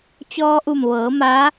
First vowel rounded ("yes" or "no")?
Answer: yes